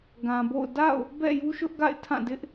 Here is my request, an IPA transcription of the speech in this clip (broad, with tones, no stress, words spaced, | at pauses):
ɡã˨bo̰˦˨ʊ̯ da̰˦˨ʊ̯ | bɛ̰˦˨ju˦ʃʊ˦ʔɡa̰˦˨ɪ̯ tʰã˦˨dɪ˦ʔ